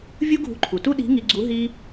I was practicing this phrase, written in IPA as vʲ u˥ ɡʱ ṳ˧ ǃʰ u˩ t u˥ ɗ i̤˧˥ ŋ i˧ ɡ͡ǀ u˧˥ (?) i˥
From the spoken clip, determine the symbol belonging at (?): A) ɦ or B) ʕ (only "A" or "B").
A